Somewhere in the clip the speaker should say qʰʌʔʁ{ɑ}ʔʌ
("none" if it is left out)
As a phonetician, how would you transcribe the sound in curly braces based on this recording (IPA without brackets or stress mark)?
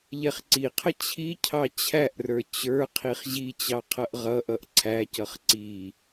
ʌ